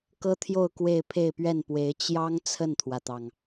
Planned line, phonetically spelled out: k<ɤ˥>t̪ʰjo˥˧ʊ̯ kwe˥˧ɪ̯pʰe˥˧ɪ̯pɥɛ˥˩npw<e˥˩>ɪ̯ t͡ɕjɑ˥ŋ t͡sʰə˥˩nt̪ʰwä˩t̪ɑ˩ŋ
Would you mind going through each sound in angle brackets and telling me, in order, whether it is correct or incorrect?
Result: correct, incorrect: e˧˥

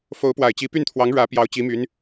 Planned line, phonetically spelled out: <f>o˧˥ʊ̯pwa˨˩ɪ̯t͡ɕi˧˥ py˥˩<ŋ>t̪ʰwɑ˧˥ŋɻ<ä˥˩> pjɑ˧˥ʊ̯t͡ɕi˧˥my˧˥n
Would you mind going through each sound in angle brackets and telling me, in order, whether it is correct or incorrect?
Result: correct, incorrect: n, incorrect: ä˧˥

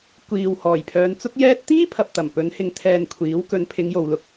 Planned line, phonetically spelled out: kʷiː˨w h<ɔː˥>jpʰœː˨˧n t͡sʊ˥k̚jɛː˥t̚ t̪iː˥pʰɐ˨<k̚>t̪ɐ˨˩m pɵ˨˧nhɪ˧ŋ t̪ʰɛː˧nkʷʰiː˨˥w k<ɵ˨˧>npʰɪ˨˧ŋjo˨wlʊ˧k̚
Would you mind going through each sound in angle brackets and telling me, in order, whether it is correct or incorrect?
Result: incorrect: ɔː˨˩, incorrect: p̚, correct

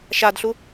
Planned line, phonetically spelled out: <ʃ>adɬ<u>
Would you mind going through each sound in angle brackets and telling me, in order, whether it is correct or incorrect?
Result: correct, correct

